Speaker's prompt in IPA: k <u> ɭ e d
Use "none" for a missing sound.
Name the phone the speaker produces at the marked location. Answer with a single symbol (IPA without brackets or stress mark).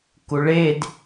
u